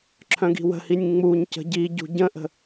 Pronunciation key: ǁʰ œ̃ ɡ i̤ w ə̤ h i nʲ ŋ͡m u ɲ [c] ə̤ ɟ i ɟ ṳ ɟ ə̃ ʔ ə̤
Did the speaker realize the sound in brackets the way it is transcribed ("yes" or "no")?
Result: yes